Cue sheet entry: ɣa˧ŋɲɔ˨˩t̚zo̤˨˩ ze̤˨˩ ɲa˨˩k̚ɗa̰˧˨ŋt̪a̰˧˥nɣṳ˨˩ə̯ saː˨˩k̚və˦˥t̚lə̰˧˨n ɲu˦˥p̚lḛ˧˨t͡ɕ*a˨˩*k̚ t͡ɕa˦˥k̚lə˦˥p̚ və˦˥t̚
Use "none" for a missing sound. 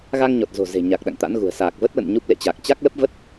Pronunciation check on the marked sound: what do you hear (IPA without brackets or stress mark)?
a˨˩